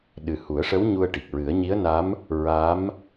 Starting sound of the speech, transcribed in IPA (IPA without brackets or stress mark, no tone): ɗ